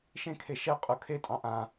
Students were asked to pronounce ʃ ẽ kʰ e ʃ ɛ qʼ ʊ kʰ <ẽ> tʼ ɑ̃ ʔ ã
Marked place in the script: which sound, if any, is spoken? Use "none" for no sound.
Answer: e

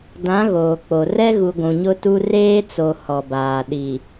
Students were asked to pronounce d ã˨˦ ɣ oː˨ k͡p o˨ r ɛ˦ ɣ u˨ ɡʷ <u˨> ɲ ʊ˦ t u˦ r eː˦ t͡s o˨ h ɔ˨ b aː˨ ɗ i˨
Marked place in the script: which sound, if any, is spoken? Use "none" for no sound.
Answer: ũ˨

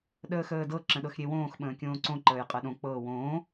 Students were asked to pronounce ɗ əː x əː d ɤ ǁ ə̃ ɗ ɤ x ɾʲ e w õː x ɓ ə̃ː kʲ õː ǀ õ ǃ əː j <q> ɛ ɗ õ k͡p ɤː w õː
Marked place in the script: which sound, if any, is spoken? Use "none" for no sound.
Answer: qʼ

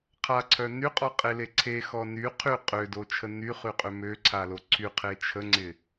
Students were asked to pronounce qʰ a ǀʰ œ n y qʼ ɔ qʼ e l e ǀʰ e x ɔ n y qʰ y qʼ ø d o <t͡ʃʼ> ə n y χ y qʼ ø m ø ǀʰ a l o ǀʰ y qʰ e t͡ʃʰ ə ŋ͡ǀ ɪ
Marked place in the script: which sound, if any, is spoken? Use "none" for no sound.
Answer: t͡ʃʰ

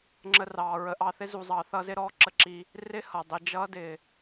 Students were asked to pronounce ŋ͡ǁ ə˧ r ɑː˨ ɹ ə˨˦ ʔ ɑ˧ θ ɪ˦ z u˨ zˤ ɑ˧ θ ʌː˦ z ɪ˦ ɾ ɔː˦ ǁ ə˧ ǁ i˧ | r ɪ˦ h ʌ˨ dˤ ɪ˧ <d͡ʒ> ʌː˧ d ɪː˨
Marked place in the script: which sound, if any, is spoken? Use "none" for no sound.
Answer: d͡ʒ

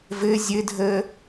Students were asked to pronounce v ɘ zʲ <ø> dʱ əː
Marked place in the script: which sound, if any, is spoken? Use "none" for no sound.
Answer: ɘ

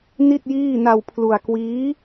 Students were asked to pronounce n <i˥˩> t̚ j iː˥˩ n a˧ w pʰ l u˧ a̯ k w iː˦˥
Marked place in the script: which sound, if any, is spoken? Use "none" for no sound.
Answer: i˥˩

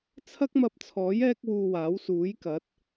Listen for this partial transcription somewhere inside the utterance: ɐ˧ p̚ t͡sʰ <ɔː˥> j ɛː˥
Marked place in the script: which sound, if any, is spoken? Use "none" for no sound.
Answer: ɔː˨˥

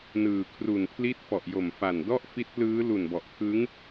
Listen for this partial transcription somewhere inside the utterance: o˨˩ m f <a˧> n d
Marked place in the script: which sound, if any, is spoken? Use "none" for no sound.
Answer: a˨˩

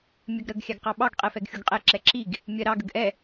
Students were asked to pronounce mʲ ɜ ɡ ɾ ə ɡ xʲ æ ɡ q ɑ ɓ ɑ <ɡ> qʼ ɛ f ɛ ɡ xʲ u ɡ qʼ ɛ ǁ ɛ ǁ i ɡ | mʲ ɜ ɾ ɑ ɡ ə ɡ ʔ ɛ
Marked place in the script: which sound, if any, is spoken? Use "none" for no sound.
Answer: ɡ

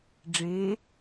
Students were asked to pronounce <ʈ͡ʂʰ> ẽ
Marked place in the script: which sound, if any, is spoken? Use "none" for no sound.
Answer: ɖ͡ʐ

